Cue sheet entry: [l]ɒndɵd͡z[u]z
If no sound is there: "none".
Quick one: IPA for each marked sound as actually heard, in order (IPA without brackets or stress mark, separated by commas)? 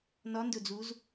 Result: n, u